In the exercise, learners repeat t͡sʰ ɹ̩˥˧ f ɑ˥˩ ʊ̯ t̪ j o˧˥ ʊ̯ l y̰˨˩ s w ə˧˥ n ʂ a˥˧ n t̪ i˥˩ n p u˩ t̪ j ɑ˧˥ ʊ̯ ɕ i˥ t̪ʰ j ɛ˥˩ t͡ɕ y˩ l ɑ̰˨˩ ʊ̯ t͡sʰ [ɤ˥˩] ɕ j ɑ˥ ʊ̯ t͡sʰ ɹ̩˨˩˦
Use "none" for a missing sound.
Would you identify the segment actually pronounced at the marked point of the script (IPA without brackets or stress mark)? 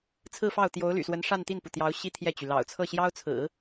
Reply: ɤ˥˩